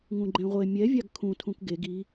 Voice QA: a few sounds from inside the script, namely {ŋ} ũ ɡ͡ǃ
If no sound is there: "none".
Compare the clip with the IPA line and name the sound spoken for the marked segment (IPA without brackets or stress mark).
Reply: ŋ